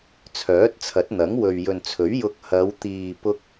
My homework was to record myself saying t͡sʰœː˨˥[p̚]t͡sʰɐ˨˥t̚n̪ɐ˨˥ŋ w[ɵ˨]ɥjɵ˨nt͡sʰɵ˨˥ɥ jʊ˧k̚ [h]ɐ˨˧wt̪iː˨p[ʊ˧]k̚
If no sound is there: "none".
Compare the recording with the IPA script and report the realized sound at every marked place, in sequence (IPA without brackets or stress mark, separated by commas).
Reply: t̚, ɵ˨, h, ʊ˧